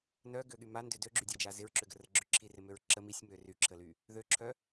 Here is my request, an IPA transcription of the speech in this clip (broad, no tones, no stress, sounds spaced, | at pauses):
n œ ɡ ø ɠ y m a n d ʏ d ø ɡ͡ǁ y dʲ a d͡ʒ a z ɪ ɹ ǁ ʏ ɡ ə r ə ɡ͡ǁ ʏ ǁʰ i r ɪ m ø ɹ ǁ ə m i sʲ m ø r y ǁʰ ə l y | ð ø ǁʰ œ